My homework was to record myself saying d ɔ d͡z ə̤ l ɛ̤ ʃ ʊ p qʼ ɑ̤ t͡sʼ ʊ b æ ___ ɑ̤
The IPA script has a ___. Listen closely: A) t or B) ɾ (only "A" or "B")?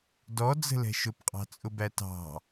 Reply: A